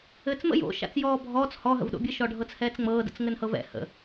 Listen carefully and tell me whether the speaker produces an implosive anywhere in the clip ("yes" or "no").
yes